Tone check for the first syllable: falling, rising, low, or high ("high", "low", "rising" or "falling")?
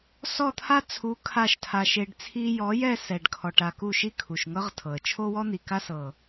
falling